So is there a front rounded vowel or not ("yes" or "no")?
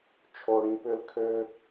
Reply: yes